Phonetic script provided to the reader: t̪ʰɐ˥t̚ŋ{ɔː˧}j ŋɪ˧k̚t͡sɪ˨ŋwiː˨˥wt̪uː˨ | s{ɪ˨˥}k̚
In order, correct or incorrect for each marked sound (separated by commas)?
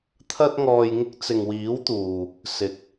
correct, correct